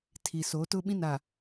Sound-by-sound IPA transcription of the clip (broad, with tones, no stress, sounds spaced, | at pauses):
tʰ i˨ s o˨˦ t ʊ˦ ɓ ĩ˦ n a˨